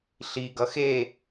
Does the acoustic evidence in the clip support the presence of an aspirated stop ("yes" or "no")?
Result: no